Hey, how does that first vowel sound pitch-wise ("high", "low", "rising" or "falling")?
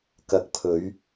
rising